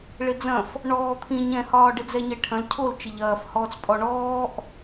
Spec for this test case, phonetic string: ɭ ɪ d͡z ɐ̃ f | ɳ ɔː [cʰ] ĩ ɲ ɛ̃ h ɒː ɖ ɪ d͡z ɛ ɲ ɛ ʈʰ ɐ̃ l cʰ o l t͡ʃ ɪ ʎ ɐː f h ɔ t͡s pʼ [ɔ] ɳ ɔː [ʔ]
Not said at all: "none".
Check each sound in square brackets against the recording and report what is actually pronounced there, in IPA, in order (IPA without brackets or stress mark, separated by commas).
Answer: t̪ʰ, ɔ, ʔ